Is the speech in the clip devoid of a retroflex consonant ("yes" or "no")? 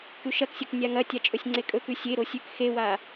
yes